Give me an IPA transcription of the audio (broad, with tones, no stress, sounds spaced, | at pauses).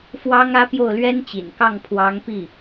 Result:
f w ɑ˥ ŋ ä˥ p j o˥˩ ʊ̯ l ɥ ɛ˥ n t͡ɕ ḭ˨˩ n k ɑ˥˩ ŋ pʰ w ɑ˧˥ ŋ p i˥˩